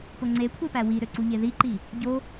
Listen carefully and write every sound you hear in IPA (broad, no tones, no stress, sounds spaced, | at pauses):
p o ŋ͡ǀ e kʷʰ e p æ w i ɾ ø ǀ u ʎ e ð i ǃ i | ɟ o